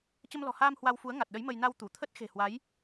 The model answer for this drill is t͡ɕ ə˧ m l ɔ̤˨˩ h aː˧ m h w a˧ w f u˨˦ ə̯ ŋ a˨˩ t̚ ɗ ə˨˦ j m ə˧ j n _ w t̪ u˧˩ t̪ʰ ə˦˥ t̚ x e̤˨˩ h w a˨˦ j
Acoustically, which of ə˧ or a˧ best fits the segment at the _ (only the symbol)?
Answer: a˧